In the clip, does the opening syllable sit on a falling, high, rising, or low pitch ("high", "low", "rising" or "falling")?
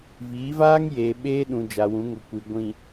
rising